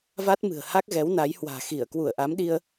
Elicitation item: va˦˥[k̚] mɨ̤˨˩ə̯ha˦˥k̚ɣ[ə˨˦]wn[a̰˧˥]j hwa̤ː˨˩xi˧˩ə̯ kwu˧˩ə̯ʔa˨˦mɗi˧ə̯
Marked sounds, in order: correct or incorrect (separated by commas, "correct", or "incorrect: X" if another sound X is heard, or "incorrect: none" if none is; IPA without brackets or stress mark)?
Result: incorrect: t̚, incorrect: ɛ˨˦, incorrect: a˨˦